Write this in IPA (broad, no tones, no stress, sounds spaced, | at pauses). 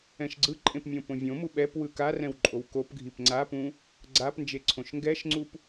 ɛ̃ ʃ ɡ͡ǀ ɯ ǃʼ ẽ p mʲ õ p õ vʲ õ m u ɓ ɛ p w ɯ k a r ɛ̃ w ǃʼ o w k o p ɡʱ i p ŋ͡ǀ a p ũ | ɡ͡ǀ a p n d͡ʒ e ǀʰ õ ʃ ŋ ɡ ɛ ʃ ŋ͡ǀ u p